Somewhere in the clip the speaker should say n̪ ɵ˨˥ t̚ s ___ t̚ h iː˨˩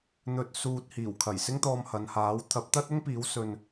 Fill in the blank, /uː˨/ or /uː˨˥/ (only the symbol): uː˨